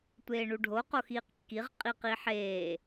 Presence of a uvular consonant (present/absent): present